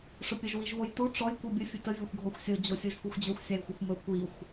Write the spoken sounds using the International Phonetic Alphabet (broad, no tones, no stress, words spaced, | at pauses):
ʂɵpʲəʒ wiʒβojtu ʈ͡ʂɔj kʷibʲə fʲɵtə vʲɔxʷɡʱɔxʷsʲo d͡ʑosʲoʒkuxʷd͡ʑɵxʷ sʲajxʷəxʷmɵ kʷixʷ